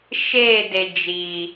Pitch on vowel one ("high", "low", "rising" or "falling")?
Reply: falling